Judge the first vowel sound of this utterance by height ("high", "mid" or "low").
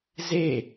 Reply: mid